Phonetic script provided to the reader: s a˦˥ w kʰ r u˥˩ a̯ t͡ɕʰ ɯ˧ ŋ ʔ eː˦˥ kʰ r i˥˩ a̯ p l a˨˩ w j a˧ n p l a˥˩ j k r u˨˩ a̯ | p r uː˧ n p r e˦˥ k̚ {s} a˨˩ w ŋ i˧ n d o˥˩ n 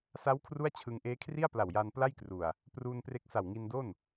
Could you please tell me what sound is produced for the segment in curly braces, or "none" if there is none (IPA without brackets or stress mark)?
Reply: s